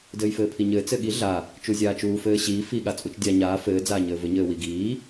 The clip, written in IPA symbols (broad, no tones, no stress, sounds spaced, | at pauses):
d ɘː j f ɘː pʰ i ɲ ɘː t͡s ɘ ɠ i ɮ a | t͡ʃ u zʲ aː t͡ʃ uː f ɘː ɕ iː f i ɠ a t͡sʼ u t͡ʃ dʲ a ɲ aː f ɘː d͡z aː ɲ ɘː v ɘ ɲ ɘː w i ɡ iː